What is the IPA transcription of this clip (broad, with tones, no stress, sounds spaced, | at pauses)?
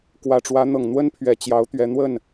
k w ä˨˩ ʈ͡ʂ w ä˧˥ n̪ ɤ˨˩ ŋ n̪ w ə˥ n pʰ ɥ ɛ˨˩ t͡ɕ j ɑ˧˥ ʊ̯ t̪ ɥ ɛ˧˥ n̪ w ə˥˩ n